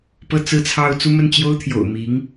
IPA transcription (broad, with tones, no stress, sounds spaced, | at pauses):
p ɤ˥˧ t͡s ɹ̩˥˧ t͡sʰ ɑ˥˧ ʊ̯ t͡s u˥˧ m ə˥˩ n t͡ɕ j o˥ ʊ̯ t̪ʰ j o̰˨˩ ʊ̯ m i˧˥ ŋ